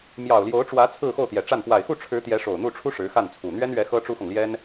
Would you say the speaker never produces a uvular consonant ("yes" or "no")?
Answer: yes